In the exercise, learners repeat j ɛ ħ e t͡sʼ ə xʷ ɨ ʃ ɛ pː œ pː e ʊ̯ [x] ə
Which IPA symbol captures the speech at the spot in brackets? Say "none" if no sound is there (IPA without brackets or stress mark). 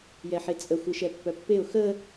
x